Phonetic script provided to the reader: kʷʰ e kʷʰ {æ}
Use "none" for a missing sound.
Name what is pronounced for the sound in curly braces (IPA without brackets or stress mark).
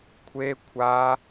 a